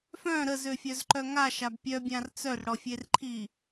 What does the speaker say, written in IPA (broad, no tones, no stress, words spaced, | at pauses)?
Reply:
fœ̃ ɾəzø fʲœzǃœŋa ʃabpʲœbʲãr t͡sœrɽɔfʲerǃʰi